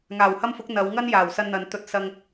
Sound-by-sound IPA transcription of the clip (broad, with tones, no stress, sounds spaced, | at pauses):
ŋ aː˨˩ w h ɐ˥ m f ʊ˨˥ k̚ n̪ ɐ˨˧ w ŋ ɐ˥ n j aː˨˩ w s ɐ˧ n n̪ ɐ˨ n t̪ ɵ˧ t̚ s ɐ˧ ŋ